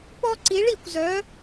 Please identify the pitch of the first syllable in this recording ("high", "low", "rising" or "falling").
high